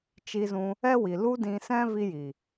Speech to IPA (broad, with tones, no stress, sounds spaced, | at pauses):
t͡ʃ i˧ z ũ˧ | ɛ˦ w i˨ l u˦ d ĩ˧ s ɛ̃˦ v i˦ j i˨